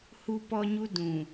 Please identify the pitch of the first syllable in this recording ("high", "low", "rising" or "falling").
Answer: high